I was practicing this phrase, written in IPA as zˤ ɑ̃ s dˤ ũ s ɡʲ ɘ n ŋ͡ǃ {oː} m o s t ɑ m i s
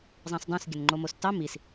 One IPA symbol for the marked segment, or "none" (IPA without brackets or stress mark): o